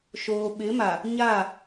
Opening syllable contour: low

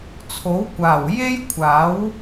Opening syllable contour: rising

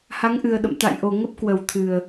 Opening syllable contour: rising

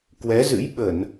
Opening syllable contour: rising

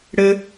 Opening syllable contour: high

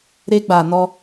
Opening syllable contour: high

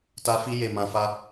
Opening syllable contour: high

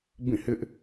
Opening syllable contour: falling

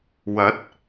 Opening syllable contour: rising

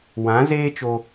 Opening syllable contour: rising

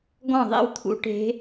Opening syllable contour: falling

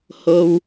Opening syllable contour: low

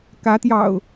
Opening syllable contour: rising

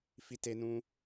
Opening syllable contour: high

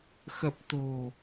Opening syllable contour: low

